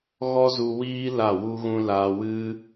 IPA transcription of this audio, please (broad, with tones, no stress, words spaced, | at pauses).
ɣɔ˦zu˧wiː˦ la˦˨wu˦ɣũ˦ la˧wɨ˦